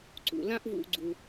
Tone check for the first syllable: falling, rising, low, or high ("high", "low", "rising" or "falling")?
low